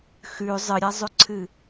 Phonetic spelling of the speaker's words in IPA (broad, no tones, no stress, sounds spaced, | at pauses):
x ʉ zˤ ɨ ɾʲ a zˤ ʉ ǀʰ ɨ